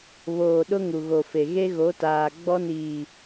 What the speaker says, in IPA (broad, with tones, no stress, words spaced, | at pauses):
βoː˨ɗʊ˦ ŋu˨ɣo˨fe˨ ɣe˦ɣo˨˦taː˨ ɡ͡bɔ˦niː˨